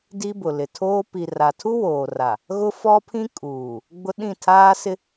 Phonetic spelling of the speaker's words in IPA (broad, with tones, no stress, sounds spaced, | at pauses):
d i˦ b ʊ˨ l ɪ˨ tʰ oː˦ p i˨ r a˨ tʰ u˦ w oː˨ r a˨ | ɣ ʊ˦ f ɔ˦ pʰ ĩ˦ kʼ uː˨ | ɡ͡b ʊ˦ ɗ ĩ˦˨ tʰ aː˦ s ɪ˦